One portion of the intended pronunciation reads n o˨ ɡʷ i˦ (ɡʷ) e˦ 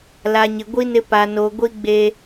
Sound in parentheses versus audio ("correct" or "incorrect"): incorrect